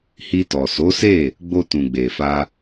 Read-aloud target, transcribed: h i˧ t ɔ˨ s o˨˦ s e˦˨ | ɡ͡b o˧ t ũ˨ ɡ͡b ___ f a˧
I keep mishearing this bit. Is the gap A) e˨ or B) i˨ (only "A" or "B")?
A